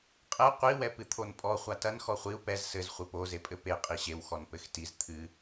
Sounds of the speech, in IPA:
qʼ ɛ qʷ i w ɛ p ɨ t̪ʰ o n pʼ ɔ χʷ a t ɐ n x ɔ χʷ i u̯ p ɛ z s ɘ z χʷ ɨ p o z e pʼ ɘ p e qʼ i ɕ e w x ɔ n p ɘ x t i z t̪ʰ ɨ

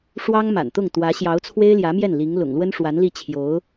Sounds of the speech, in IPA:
ʂ w ɑ˥ ŋ m a̰˨˩ n t̪ ʊ˥˩ ŋ t̪ w ä˧˥ ɕ j ɑ˧˥ ʊ̯ t͡sʰ w e˥ ɪ̯ l j ä˧˥ m j ɛ˥˩ n l i˧˥ ŋ l ʊ̰˨˩ ŋ l w ə˥ n ʂ w a˧˥ n l i˥˩ t͡ɕʰ j o˧˥ ʊ̯

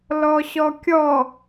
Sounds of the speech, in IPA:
l ɔ ɕ ɔ kʲ ɔ

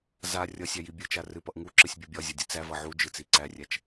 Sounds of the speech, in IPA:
z a rʲ ʌ sʲ æ j i bʲ ɨ t͡ʃ a r ɨ p ʌ ʔ ŋ u ǁ ɨ sʲ bʲ u bʲ ɒ zʲ a dʲ ɨ t͡s æ v ʌ ʕ u d͡ʒ ɨ t͡s i ǀ æ rʲ æ t͡ʃ

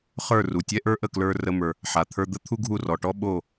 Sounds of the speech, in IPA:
χ ə˞˥˩ r u˩ tʲ ɛ˥ ʔ ə˞˥ ʔ ə˥˩ k l ə˞˧ r ə˧ m ə˞˩ | ħ a˩ t̪ʰ ə˞˧ d̪ ə˥ t̪ʰ u˥ ɡʱ u˥˩ r ɔ˩ ʈ ɔ˥ ɓ o˥˩

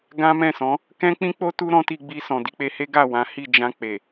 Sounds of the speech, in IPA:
ɡ ã˦ m ɛ̃˦˨ s ɔ̃˨˦ | k ɛ̃˦ k͡p ĩ˦ k͡p o˦ t u˦ ɾ ɔ̃˦ t i˧ ɡ͡b i˧ s ɔ̃˨ d i˧ k͡p e˧ h e˦ ɡ a˦˨ w ã˨˦ h i˦˨ d͡ʒ ã˧ k͡p e˨

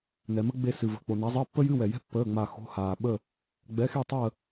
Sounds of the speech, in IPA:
n ɛ˨ m ə˥ ɡ͡b e˦˨ s ɨ˨ v ə̤˨ k͡p o˨ n a˨˦ zˤ əː˧˥˧ pː ə˥ j ɨ˧˥˧ w ɛ˨ j ɛ̤˥ pː əː˧˥˧ ŋ͡m a˦˨ x o̤˧˥˧ h aː˨ ɓ ə˦˨ | ɡ͡b ɛ˨˦ x e˦˨ tˤ əː˦˨

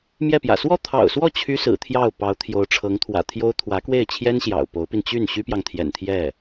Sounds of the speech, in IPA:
m j ɛ˥˩ p j ä̰˨˩ s w ɔ˥˩ t̪ʰ ɑ̰˨˩ ʊ̯ s w ɔ˥˩ t͡ɕʰ y˥ s ɹ̩˨˩ t̪ʰ j ɑ˥˩ ʊ̯ p ɑ˧˥ ʊ̯ t̪ʰ j o˧˥ ʊ̯ ʈ͡ʂʰ ɤ˧˥ ŋ t̪ʰ w ä̰˨˩ t̪ʰ j o˥ ʊ̯ t̪ʰ w ä˧˥ k w e˥˩ ɪ̯ t͡ɕʰ j ɛ˥ n ɕ j ɑ̰˨˩ ʊ̯ p o˧˥ ʊ̯ p i˧ n t͡ɕ y˥˩ n ɕ y˥ p j ɑ˨ ŋ t̪ʰ j ɛ̰˨˩ n t̪ʰ j ɛ˥˩

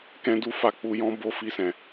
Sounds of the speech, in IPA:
k ɛ̃˦ d u˦ f a˦˨ k͡p u˧ j ɔ̃˦ b o˦˨ f i˧ s ɛ̃˨

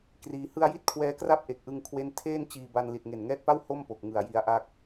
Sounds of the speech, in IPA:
k r iː˧ h ɯ˧ a̯ j i˦˥ t̚ kʰ w ɛː˦˥ k r a˥˩ p̚ ʔ e˨˩ k̚ ʔ ɯ˧ ŋ kʰ w e˥˩ n tʰ eː˥˩ n t͡ɕ iː˧ b a˧ n l i˨˩ t̚ ŋ e˨˩ n ŋ ɛː˦˥ t̚ p a˥˩ w h o˥˩ m p o˨˩ k̚ ŋ ɯ˨˩ a̯ j i˧ a̯ ʔ a˥˩ k̚

